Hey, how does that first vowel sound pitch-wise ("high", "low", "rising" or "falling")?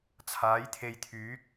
rising